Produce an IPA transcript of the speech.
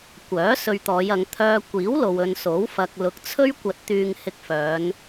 kʷ œː˨˥ s ɵ˧ ɥ t̪ ɔː˨˧ j ɐ˨˧ ŋ t̪ʰ œː˧ kʷ iː˨˥ w l o˨ w ɵ˧ n s o˨˥ w f ɐ˧ k̚ l ʊ˨ k̚ t͡sʰ ɵ˥ ɥ kʷ ɐ˧ t̚ t̪ yː˧ ŋ h ɪ˧ k̚ f œː˨˧ n

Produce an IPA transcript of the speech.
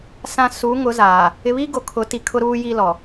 s ã˨ s u˨˦ ŋ ʊ˨˦ z aː˨ | ɪ˨ β i˦ ɡ o˨ kʰ ʊ˨˦ t i˨ kʰ ʊ˦ ɾ uː˦ j i˦ l ɔ˨

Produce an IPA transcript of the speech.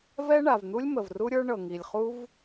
v ɛ˥ ɳ a˩ v n̪ u˥ lʲ m ə˩ v r u˥ ɾʲ ə˞˥ ɳ ɤ˩ ŋ i˩ lʲ χ u˥ v

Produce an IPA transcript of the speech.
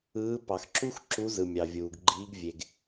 ɯː˨˥ p ɑ˩ x ǁ u˦˥ x ǁ u˨˥ z ɯ˩ mʲ ɑ˩ vʲ uː˩ ɡ ɡ͡ǃ iː˨˥ ɡ vʲ e˩ ɡ

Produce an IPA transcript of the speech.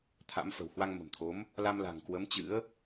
t̪ʰ a̰˧˥ m f ə̤˨˩ w h w a˧ ŋ m ə̤˨˩ m t̪ʰ o˨˦ m | l a˧ m l a̤˨˩ ŋ k w ə˨˦ m t͡ɕ ɨ̰˧˥ ə̯

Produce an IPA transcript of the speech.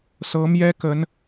s ɤ˧˥ m j ɛ˥ k ə˧˥ n

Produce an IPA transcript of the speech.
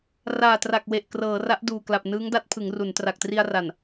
r aː˨˩ t r a˨˩ k̚ w e˨˩ ʔ k r ɤː˩˦ r a˦˥ ʔ d uː˨˩ k l a˨˩ p̚ n ɯː˦˥ ŋ d a˦˥ t̚ pʰ ɯ˩˦ ŋ r u˩˦ n t r a˨˩ k̚ t r i˧ a̯ r a˨˩ n

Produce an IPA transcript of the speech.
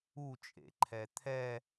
u t͡ʃʼ ḛ ǃʰ ɛ t̪ʰ ɛ

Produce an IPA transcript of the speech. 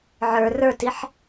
ʕ ə˞ r ə˞ t i ħ

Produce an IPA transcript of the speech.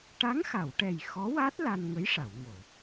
ʈ a˧˥ ŋ x a˨˩˨ w ʈ ɛ˨˩ j x ɔ˧˥ w a˦˥ t̚ l a˧ n ŋ ə˧˥ j ʂ a˨˩˨ w ŋ o˨˩˨

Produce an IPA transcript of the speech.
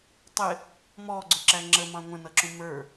tˤ ɪ | m ɔ ɡ͡ǀ ʊ ǁ æ ŋ͡ǁ ə m ɑ̃ ŋʷ ə̃ n ʌ ǁ ũ m ə˞

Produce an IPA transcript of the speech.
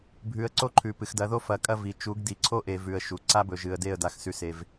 bʱ ʉ˨ ə̯ ǀ o˦ ǃʰ ʉ˨ p ɨ˨ x d ɐ˨˦ ð o˦ f ɐ˨˦ kʼ ɐ˦ v i˨ t͡ʃ u˨˦ ɡ d i˨ ǀʰ o˦ ʔ e˨ v ʉ˨ ə̯ ʃ u˨ ǀ a˦ b ɵ˨ ʒ ɨ˨ ə̯ d e˦˨ ə̯ d a˦ x s ʉ˦ s e˦ v

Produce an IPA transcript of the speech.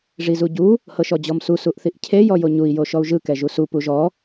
ʐ i z u ɟ u | h ɤ ʃ ɔ d͡ʑ ɔ m s u s u ʔ θ i ʔ cʰ e j ɔ j o ɲ u i̯ j o ʃ ɔ u̯ ʒ ɯ k ɛ ʒ u s u p u ʒ ɔ

